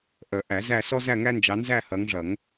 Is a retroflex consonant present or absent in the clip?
present